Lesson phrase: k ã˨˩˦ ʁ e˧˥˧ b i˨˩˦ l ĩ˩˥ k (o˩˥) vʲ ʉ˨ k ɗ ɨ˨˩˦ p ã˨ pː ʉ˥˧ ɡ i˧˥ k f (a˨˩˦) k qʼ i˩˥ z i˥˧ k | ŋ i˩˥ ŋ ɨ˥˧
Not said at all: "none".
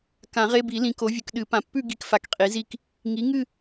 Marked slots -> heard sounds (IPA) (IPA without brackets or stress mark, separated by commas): o˩˥, a˨